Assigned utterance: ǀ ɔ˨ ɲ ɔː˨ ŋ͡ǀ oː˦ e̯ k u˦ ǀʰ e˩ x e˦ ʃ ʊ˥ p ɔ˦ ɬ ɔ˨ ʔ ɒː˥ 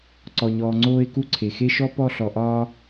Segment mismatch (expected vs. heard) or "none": ʊ˥ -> ɔ˥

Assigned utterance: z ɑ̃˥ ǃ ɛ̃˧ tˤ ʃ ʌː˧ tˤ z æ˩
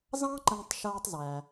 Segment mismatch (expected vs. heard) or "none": none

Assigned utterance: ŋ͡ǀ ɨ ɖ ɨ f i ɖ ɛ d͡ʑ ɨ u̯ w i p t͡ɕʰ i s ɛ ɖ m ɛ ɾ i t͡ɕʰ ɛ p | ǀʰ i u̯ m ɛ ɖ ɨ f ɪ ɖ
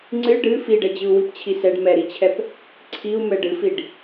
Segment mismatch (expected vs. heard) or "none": ɪ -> i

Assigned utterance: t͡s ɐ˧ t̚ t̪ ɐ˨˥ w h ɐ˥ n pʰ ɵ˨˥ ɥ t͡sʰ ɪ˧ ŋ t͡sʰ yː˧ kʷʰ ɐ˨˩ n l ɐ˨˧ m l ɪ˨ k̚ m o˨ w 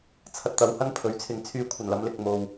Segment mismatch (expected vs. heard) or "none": t͡s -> t͡sʰ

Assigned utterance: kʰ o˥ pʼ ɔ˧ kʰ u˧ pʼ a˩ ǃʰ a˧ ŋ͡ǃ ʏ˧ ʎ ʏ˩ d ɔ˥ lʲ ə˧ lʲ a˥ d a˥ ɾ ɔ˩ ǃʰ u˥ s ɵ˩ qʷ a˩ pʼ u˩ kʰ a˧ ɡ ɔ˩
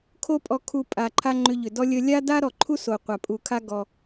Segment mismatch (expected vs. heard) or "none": ɵ˩ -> o˩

